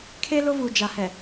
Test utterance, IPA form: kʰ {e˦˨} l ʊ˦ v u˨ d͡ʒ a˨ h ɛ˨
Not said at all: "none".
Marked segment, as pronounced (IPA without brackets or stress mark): e˦